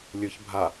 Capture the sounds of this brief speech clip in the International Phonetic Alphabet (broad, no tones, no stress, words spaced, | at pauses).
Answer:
lʲɯç bʱa